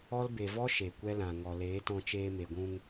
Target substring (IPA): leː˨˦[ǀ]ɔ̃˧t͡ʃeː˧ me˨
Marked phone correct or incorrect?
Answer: incorrect